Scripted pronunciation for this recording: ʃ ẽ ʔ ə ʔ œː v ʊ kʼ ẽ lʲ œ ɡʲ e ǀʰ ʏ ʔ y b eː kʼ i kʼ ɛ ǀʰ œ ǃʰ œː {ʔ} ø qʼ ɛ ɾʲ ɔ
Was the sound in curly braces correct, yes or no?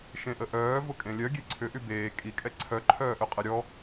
yes